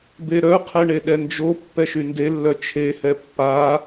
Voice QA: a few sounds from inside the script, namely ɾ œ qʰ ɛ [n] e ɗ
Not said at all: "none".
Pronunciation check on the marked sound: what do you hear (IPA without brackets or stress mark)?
ɳ